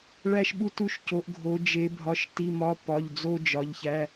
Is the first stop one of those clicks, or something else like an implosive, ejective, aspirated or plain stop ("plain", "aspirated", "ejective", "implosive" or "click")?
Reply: implosive